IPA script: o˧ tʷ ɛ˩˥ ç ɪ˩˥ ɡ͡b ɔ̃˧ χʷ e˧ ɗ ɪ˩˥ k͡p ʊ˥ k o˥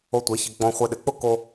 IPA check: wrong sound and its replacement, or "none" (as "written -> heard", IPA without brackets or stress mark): none